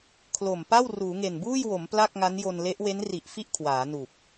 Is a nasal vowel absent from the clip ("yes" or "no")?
yes